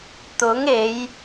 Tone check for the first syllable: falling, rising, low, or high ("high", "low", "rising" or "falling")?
rising